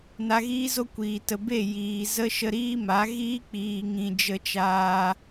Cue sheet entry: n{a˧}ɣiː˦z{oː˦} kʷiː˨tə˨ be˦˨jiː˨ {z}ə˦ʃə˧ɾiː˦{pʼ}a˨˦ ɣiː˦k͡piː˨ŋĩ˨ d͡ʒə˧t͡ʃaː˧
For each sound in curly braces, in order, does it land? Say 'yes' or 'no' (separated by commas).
yes, no, yes, no